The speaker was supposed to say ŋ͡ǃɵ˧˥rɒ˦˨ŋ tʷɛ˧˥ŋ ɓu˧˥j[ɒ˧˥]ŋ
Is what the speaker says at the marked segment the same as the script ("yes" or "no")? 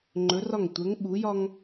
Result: no